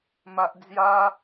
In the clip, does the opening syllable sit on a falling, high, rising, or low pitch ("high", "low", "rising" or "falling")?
high